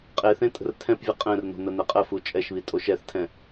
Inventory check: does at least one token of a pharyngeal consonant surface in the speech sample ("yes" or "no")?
no